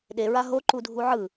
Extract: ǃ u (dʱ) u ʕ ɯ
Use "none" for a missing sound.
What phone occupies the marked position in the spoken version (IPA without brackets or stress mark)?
dʱ